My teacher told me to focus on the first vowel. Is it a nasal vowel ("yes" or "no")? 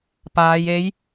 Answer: no